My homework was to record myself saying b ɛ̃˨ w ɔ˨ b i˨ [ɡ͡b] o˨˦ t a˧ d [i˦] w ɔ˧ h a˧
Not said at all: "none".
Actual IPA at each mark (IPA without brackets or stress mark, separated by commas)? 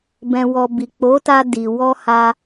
k͡p, i˨